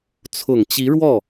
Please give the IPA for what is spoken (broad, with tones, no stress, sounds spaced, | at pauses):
t͡sʰ ʊ˨˩ ŋ t͡ɕ i˧˥ ɻ w ɔ˥˩